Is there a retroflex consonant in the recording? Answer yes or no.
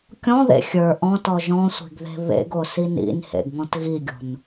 no